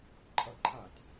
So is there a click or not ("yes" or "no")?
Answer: yes